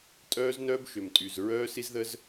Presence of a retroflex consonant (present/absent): absent